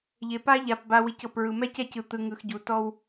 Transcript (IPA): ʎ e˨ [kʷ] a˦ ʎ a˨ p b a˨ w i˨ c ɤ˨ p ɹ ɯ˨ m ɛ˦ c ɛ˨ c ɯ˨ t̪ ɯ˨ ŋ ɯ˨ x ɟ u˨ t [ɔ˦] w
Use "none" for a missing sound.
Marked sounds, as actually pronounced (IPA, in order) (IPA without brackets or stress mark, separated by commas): p, ɔ˦